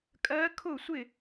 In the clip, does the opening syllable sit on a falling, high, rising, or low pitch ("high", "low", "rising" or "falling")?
rising